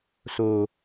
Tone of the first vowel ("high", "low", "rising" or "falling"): low